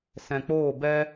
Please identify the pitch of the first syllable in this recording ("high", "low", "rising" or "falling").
low